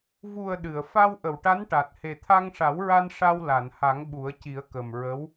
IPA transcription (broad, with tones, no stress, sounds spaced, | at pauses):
v u˨˩ ə̯ ɗ ɨ˨˩˨ ə̯ f a˧ w ʔ ə˨˩˨ w ʈ a˧˥ n ʈ a˨˩ t̚ h e˨˩ t̪ʰ a˧ ŋ ʂ a˨˩˦ w ɹ a˧ n ʂ a˧ w l a˨˩˨ n h a˨˩˦ ŋ ɓ u˨˩˦ ə̯ c i˨˩˦ ə̯ k ə˨˩ m ɹ ə˧˥ w